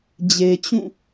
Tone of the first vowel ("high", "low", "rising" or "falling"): low